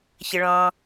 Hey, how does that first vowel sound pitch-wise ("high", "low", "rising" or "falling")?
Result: low